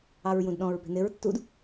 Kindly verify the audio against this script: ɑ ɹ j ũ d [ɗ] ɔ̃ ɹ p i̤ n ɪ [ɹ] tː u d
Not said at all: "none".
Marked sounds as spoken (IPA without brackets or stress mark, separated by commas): ɗ, ɹ